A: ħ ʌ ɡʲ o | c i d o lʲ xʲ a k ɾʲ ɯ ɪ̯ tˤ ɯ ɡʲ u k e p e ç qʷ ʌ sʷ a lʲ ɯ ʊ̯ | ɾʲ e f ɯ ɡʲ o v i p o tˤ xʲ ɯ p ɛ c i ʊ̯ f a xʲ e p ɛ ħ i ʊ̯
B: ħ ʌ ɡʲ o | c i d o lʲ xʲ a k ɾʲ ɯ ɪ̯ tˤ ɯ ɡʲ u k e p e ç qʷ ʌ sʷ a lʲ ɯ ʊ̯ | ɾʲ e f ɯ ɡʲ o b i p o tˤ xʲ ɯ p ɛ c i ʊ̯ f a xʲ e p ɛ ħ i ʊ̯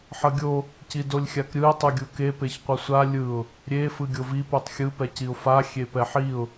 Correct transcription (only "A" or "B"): A